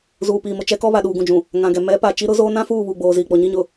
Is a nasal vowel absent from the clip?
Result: no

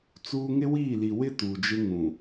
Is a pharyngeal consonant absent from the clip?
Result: yes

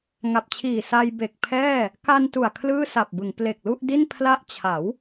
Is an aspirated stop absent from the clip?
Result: no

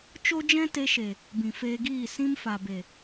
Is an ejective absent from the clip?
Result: yes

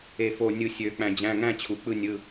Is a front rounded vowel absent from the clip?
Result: no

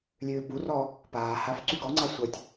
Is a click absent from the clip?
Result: no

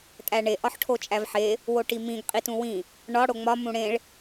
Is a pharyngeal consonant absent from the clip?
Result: no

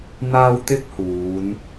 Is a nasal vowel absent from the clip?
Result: yes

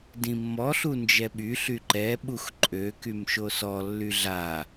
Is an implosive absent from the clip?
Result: no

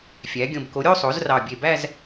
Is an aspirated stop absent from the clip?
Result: yes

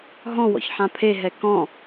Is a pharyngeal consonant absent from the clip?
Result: no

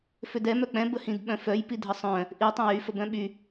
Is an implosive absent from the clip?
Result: no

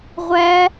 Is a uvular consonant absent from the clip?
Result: no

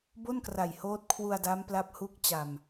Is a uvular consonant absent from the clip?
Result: yes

